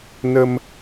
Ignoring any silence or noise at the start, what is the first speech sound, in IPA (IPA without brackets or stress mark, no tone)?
n